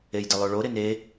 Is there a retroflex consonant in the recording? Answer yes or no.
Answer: yes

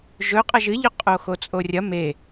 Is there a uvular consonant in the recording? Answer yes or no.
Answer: yes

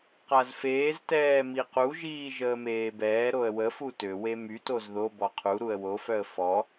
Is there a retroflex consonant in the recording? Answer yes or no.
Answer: no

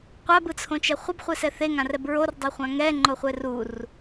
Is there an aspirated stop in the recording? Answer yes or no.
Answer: yes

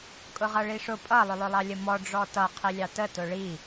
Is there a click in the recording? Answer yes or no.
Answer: no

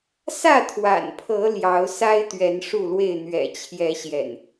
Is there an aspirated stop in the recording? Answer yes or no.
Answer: yes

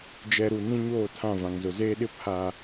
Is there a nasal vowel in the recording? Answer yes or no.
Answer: yes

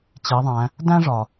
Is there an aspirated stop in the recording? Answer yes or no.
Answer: no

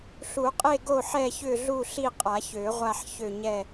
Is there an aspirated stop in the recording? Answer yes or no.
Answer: no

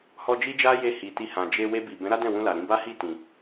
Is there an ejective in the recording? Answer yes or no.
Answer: no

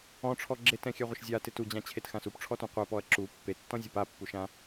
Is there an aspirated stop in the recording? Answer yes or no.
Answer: yes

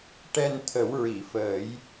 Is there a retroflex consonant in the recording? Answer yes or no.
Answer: yes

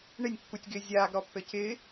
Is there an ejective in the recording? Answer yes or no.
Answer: no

